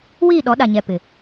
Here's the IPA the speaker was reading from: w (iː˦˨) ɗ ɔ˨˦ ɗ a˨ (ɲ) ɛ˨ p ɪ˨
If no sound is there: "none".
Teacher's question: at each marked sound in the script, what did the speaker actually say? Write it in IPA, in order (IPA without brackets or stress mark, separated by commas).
iː˦˨, ɲ